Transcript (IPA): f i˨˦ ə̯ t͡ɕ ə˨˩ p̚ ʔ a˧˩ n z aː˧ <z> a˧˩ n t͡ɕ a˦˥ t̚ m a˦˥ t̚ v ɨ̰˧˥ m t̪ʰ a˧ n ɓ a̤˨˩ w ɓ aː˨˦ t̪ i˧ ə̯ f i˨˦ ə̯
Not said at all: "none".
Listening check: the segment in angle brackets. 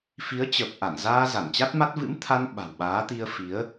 z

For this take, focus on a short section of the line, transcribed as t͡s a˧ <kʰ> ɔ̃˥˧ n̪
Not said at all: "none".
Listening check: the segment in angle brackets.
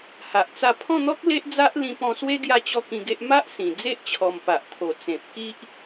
pʰ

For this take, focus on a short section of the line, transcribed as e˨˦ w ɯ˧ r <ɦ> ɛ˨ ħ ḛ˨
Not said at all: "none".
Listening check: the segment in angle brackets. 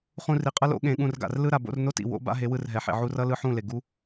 ɦ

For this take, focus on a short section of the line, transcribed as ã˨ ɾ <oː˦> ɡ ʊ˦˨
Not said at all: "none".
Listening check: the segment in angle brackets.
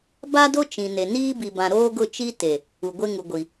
oː˦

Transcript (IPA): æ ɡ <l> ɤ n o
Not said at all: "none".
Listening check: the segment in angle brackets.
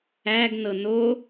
n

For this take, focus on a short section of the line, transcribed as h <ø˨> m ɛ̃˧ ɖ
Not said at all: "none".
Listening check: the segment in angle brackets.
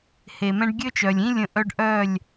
e˨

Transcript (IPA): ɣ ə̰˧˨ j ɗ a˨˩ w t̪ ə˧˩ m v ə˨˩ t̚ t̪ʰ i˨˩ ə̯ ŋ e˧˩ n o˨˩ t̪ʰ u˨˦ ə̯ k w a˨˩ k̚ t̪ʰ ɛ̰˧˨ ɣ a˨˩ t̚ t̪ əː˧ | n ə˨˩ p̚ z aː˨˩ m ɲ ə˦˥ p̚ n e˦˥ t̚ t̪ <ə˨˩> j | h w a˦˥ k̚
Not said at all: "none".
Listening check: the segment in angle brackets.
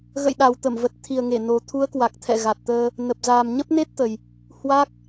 ə˨˩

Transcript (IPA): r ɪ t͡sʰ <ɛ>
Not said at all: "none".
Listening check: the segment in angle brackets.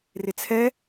ɛ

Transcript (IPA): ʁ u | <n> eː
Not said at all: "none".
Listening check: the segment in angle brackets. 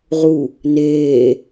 n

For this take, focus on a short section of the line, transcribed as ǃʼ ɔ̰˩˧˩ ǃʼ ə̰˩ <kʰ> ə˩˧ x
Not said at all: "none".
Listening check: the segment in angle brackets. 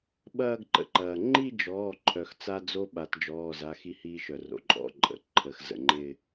ǃʰ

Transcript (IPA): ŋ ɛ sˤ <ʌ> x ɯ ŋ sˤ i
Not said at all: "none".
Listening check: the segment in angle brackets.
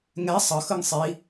ʌ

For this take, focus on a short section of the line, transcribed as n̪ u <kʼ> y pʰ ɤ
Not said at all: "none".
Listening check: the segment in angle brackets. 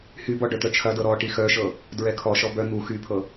x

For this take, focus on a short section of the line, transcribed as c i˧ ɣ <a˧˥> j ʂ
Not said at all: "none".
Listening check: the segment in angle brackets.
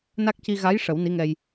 a˧˥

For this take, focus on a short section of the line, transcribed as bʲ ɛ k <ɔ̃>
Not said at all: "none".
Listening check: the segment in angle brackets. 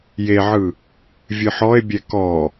ɔ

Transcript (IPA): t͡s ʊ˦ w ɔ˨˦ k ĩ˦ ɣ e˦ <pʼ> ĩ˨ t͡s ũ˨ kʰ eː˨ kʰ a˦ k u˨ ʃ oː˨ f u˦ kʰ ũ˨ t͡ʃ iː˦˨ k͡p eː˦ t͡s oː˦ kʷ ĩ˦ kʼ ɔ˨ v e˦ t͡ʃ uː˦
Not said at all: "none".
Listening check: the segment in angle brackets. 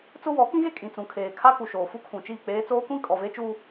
kʼ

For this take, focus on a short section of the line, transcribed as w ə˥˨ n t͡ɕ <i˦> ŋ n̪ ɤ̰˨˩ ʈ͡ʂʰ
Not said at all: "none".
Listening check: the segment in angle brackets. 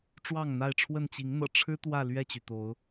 i˨˦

